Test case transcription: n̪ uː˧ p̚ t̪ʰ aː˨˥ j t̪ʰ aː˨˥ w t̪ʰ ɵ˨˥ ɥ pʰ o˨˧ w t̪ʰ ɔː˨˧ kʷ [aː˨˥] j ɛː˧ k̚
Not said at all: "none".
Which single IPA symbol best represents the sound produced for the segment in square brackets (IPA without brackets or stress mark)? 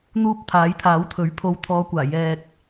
aː˨˩